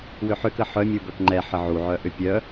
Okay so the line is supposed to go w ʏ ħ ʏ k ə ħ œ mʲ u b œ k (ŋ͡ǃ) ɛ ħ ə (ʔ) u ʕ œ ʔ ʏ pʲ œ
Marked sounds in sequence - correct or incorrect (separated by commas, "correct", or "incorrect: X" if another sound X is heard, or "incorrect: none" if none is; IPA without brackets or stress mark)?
correct, incorrect: ʕ